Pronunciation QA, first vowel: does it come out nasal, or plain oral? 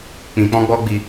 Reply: nasal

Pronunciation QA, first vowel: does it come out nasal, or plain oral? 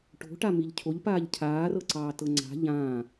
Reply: oral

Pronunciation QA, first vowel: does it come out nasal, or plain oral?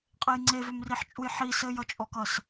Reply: oral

